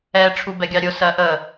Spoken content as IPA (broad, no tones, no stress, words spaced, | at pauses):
ɛ ʈ͡ʂʰubɛɡʲɑɾʲʊ sɜʔə